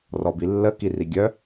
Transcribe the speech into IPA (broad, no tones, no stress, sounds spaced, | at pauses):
r ɔ b i lː ə k i r i ɡʲ œ